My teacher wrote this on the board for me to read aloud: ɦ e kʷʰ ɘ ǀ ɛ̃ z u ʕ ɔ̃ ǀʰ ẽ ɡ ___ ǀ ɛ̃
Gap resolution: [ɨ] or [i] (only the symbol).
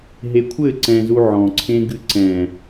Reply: ɨ